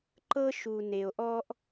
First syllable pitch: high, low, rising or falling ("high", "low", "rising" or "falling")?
high